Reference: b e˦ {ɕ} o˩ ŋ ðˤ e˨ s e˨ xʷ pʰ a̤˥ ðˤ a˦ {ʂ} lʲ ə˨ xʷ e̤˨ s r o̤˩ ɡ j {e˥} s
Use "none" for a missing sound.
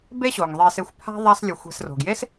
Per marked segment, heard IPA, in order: ɕ, s, e˥

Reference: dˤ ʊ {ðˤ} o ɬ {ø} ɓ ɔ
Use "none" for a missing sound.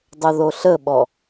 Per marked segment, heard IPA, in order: ð, ə

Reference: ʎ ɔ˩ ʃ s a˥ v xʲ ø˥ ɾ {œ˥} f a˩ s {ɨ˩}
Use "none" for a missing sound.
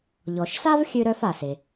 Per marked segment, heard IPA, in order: œ˥, e˩

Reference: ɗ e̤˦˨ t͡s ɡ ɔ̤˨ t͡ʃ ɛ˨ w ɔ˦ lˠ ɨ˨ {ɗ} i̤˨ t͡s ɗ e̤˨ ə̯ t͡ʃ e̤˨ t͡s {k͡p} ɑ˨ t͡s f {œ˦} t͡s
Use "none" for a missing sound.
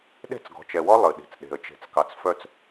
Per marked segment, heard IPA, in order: ɗ, k, œ˦

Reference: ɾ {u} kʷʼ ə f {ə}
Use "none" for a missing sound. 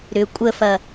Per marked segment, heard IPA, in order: ʏ, ɐ

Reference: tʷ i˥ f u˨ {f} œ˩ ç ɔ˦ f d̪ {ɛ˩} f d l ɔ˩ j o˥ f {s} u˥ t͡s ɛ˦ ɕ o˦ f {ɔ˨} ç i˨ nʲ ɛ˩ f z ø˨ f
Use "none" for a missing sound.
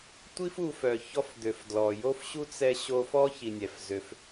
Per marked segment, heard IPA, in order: f, ø˩, ɕ, ɔ˥

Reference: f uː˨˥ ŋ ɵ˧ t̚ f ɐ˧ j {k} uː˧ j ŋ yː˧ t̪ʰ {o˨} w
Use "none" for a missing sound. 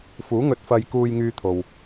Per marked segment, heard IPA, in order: k, o˨

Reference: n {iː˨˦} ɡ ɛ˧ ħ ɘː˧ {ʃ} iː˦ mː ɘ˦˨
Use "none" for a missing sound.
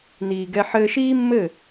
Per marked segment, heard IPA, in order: iː˨, ʃ

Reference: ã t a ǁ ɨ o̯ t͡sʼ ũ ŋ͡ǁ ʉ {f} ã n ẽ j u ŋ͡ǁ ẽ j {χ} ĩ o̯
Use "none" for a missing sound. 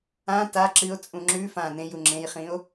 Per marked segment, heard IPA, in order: f, χ

